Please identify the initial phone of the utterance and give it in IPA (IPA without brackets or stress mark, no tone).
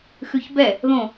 x